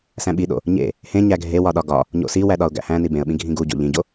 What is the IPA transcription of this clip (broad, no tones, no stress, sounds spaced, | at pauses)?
s æ̃ ɓ i ɗ o̰ | ɲ ḛ | h ẽ ɲ æ ɡʱ e w ɒ ɗ ɒ ɡ ɒ | ɲ o̰ s i w æ ɗ ɒ ʊ̯ ɡ æ̰ h æ̃ n i b ẽ ə̯ ɓ ĩ ɡʱ ĩ ɡ u ɟ o̰ ʎ ĩ ɟ o